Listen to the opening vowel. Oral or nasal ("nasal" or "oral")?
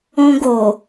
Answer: nasal